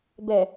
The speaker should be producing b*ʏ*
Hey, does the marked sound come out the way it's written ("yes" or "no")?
no